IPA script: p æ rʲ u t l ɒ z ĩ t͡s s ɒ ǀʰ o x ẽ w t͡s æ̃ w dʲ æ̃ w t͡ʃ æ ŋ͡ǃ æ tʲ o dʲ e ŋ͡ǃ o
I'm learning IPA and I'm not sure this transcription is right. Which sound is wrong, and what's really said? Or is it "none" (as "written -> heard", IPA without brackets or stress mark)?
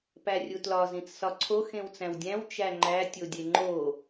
none